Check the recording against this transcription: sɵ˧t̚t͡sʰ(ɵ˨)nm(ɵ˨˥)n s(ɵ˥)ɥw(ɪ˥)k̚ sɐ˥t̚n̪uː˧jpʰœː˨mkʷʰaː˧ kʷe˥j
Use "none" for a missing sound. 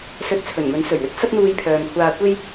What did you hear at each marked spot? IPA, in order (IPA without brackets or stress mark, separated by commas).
ɵ˨˩, ɵ˨˥, ɵ˨˩, ɪ˥